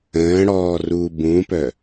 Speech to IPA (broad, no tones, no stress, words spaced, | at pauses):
ə̃ːɽɔːruː bũpœ